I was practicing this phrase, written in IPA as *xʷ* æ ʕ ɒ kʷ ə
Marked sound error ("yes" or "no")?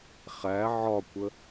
yes